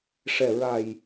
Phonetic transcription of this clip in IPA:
ʂɛ˨˩ɹa˨˩j

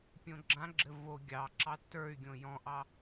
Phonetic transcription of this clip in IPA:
pʲõɡ͡ǁãɡ͡ǁɘ vo ɡʲɑ ǁɑtːə˞y̯ɡʲõ jɔ̃ʔɑ

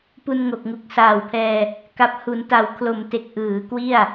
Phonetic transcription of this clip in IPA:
pu˧nŋo˨˩k̚ ŋu˨˩k̚saː˨˩wpʰɛː˧ | ka˨˩p̚hu˩˦n ta˩˦wkʰlo˨˩mte˨˩k̚ ʔɯː˩˦kwi˥˩a̯

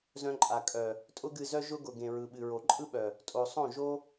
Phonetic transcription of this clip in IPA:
zœ̃˧ǃʼa˨ kʼœ˨ | tʼʊ˦ɡɨ˧zœ˦ ʒʊ˦ɡʊ˨ ɡẽ˨ɹɯ˨ɓɨ˨ɹo˨ ǃʼɯ˦ɓœ˨ | tʼo˨sˤõ˦˨ ʒo˦

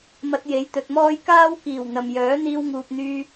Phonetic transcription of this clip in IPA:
mɐ˧t̚je˨˥jt̪ɵ˨t̚mɔː˥j kaː˥wkiː˨˩w n̪ɐ˨mjœː˨˥ n̪iː˧wŋuː˨p̚n̪yː˧

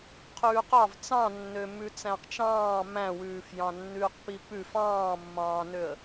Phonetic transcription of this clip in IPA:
qʰʉːqɑv t͡sɑ̃nːømʉ t͡sæ̃qt͡ʃɑ̃ː mæ̃wʉːf jɑ̃nːʉːqpipʉf ɑ̃ːmːɑ̃ːnøə̯

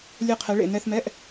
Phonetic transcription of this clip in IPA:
lʲɛ˧˩qʰɛ˩˧ ɭḛ˧˩nɛ˧θmɛ˧˥˧ʔ

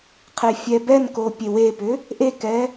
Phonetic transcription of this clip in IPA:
qʰefʲɛbɛnko pʲewepʏ | ʔekɛ

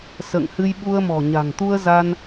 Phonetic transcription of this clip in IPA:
sə̰ː˧˨ŋhɨ˧j ɓu˧ə̯mɔ̤˨˩ɲa̤˨˩ŋ t̪u˧ə̯za˧n

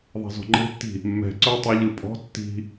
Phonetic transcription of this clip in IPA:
ðˤe̤zɔ̤ŋ͡ǃe̤tːi̤ | mːɛ̤ ǀœtˤəʎɯ pʼɔ̤ tːi̤

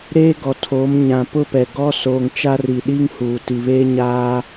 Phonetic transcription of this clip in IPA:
ɾeː˦ɡɔ˨tʰoː˨˦m ɲã˨ pʊ˦pɛ˨ɡɔ˦ soː˨ŋt͡ʃa˦ri˨ ɗi˦ŋhuː˨ti˨βeː˦ ɲaː˦

